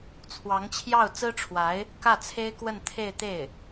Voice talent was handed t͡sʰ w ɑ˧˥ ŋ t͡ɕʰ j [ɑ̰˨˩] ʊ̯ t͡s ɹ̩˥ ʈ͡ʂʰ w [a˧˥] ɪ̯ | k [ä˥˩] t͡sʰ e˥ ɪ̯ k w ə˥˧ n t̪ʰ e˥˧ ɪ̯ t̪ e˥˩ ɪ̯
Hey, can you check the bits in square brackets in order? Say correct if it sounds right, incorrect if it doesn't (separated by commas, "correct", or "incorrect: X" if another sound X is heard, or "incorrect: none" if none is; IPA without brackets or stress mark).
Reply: incorrect: ɑ˥˩, correct, correct